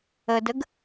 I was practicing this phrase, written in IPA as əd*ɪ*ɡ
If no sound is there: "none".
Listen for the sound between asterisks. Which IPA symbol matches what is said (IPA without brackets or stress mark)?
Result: ə